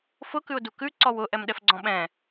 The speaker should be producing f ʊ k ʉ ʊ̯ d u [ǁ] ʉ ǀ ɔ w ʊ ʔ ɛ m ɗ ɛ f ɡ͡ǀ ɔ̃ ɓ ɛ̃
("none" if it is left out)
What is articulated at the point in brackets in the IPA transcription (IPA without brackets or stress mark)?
k